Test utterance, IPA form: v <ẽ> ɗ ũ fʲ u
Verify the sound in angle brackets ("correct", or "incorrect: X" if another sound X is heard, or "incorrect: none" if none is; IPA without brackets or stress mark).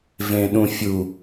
correct